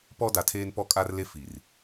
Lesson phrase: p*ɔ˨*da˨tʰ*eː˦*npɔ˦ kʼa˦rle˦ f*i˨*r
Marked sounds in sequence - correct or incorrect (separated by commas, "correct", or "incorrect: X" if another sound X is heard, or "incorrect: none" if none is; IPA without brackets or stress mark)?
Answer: incorrect: ɔ˦, correct, correct